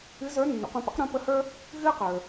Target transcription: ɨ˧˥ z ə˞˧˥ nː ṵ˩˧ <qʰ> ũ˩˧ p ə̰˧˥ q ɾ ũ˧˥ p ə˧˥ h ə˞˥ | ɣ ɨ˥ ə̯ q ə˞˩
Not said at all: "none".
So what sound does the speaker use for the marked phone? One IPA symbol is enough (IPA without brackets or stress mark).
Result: q